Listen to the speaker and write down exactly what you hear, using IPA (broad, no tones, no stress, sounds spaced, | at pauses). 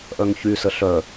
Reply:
ʔ œ ŋ ç y s ə ɬ œ